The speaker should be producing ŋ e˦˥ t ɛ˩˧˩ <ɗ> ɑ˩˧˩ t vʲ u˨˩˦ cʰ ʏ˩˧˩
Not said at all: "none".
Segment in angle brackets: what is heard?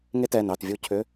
n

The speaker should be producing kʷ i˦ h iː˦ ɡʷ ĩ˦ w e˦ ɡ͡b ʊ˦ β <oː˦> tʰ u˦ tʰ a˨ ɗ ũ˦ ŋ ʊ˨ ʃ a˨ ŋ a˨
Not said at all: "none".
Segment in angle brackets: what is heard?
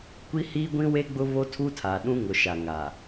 o˦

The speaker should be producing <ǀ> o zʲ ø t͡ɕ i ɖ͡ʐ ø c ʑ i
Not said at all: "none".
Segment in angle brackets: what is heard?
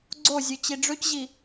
ɡ͡ǀ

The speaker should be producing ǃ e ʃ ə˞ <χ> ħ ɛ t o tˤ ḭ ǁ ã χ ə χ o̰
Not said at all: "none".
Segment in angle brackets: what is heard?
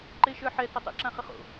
none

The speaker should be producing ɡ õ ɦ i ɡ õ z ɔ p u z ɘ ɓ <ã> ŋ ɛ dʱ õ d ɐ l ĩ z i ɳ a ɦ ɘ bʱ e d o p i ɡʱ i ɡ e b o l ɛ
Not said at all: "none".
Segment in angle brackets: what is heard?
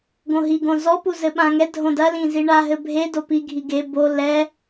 ã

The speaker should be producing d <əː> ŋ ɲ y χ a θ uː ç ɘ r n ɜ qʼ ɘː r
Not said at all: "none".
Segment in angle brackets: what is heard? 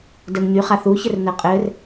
əː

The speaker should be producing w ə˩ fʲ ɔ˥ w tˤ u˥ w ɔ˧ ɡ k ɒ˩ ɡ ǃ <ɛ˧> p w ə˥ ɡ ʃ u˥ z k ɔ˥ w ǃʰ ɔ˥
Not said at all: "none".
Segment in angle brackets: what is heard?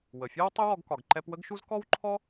ɛ˧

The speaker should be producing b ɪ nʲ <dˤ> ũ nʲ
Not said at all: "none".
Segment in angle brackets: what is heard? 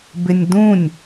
d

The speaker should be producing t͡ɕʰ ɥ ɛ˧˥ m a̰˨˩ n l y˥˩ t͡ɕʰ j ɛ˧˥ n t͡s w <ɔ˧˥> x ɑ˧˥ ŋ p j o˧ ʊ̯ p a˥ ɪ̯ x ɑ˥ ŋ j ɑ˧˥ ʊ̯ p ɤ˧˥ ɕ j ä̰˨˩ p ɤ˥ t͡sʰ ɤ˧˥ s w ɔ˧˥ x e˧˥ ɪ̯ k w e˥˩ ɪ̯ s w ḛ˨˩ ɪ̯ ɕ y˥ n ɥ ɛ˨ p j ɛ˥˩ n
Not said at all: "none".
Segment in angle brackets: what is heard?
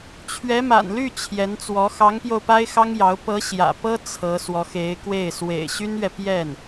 ɔ˧˥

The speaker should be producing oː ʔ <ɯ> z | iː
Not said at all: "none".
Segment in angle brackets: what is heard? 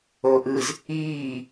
ɯ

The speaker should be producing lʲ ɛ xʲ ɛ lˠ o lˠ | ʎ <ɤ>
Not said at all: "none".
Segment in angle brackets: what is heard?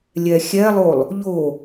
o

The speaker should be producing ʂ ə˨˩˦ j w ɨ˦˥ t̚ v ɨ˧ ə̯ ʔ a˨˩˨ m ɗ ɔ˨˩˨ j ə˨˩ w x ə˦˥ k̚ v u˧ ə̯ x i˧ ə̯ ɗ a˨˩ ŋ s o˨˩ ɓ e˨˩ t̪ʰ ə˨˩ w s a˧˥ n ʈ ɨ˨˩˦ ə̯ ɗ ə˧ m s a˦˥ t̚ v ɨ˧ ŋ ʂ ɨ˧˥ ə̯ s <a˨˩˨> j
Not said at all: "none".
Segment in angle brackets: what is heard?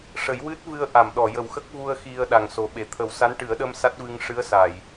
a˨˩˨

